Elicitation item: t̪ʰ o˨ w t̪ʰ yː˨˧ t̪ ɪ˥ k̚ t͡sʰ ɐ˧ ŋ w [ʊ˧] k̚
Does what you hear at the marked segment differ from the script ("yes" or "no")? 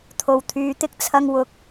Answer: yes